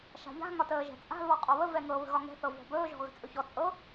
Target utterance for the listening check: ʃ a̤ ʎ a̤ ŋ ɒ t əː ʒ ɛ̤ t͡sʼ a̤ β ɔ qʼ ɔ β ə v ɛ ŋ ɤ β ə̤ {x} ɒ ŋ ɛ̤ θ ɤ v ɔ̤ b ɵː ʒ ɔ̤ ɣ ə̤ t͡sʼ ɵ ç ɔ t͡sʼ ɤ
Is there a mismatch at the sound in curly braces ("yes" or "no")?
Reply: yes